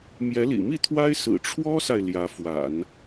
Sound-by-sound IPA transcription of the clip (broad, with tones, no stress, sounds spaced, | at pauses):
m j ɛ˧˥ l ḭ˨˩ m i˥˩ t̪ʰ w a˥ ɪ̯ s ɹ̩˨˩ ʈ͡ʂʰ w ɔ˥ s a˨ ɪ̯ l j ä˧˥ f w a̰˨˩˦ n